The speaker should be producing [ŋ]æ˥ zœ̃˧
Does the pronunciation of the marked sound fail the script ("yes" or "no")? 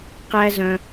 yes